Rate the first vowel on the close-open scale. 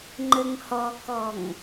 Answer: mid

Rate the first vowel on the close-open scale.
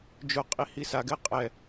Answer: close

